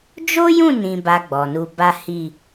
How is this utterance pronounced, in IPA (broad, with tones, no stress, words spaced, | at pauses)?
d͡ʒo˦jũ˦˨ nĩ˧ba˧ ɡ͡bɔ˨nu˧ba˦ hi˦˨